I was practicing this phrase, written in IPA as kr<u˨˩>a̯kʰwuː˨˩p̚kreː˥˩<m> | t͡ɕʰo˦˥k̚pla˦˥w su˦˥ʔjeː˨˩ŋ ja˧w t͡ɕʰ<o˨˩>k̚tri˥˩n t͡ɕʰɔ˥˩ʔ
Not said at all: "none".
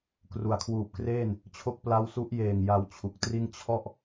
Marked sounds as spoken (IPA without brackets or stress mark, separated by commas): u˩˦, n, u˨˩